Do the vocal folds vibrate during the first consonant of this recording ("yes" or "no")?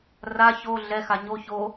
yes